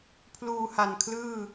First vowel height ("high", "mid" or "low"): high